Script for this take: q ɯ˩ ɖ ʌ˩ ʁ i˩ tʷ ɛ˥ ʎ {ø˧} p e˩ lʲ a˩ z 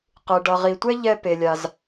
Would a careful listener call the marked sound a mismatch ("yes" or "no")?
yes